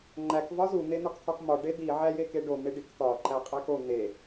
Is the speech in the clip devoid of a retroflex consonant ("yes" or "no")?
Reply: no